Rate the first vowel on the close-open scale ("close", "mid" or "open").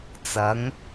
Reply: open